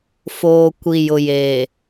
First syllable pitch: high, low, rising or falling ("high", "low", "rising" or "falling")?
low